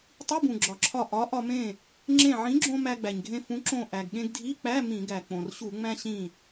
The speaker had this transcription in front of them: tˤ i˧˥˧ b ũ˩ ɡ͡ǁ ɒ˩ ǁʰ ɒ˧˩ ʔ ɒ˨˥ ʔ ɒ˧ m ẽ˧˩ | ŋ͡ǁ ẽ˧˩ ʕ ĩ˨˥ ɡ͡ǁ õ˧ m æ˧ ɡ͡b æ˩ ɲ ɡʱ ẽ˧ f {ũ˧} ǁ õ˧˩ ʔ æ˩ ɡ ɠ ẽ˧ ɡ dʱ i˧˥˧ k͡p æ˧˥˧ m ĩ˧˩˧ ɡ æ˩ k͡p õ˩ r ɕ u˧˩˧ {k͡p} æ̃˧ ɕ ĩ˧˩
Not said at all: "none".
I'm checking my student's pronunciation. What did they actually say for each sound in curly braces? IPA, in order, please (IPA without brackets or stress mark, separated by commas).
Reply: ũ˨˥, ŋ͡m